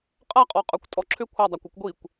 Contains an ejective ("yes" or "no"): yes